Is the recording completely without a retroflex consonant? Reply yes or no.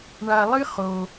no